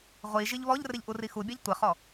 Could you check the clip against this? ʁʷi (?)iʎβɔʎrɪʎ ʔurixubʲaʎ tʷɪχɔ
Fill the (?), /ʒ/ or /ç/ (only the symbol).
ʒ